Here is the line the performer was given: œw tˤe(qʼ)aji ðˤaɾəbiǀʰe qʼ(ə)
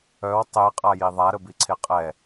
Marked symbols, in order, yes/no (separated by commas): yes, no